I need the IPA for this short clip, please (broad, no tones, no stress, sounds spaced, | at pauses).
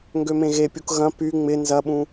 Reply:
ŋ ɡ ø m ẽ ɣ e pʲ u k ɣ ɐ̃ p y ŋ͡m ɪ n z ɐ ɓ ũ